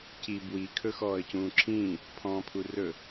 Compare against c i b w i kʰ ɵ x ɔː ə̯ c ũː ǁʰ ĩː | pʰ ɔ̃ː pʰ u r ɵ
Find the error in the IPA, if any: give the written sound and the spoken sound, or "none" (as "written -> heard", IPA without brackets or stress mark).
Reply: none